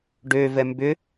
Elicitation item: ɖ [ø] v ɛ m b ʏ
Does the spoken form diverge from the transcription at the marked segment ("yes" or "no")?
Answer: no